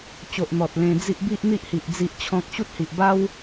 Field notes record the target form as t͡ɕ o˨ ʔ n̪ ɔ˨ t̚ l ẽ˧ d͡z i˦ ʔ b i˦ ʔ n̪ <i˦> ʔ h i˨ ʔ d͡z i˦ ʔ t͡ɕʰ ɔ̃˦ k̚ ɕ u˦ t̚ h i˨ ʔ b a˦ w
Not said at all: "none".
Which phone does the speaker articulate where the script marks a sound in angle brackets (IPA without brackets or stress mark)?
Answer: i˦